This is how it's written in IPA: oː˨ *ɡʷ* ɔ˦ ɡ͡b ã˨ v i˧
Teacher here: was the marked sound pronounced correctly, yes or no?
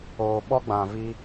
no